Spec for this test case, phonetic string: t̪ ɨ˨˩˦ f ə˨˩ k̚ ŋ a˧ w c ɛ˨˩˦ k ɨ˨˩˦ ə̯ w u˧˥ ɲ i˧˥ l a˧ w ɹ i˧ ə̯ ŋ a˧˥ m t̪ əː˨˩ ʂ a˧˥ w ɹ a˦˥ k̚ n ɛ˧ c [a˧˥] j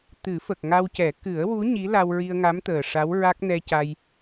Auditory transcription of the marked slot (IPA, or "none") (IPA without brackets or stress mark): a˧